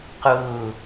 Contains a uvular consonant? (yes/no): yes